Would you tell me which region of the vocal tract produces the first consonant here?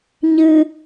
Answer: palate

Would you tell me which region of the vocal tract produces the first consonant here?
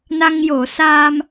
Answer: tongue tip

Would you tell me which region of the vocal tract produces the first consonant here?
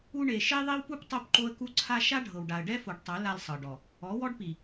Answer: retroflex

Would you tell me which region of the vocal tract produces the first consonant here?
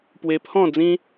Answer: lips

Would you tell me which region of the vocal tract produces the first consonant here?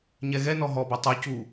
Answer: palate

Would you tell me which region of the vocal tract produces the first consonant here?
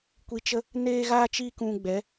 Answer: velum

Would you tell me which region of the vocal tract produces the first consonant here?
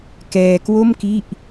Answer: velum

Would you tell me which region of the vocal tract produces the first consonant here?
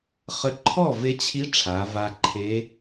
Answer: uvula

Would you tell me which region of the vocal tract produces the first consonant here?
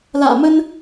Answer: tongue tip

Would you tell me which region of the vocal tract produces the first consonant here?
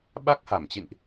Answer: lips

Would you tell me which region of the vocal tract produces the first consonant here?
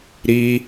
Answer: tongue tip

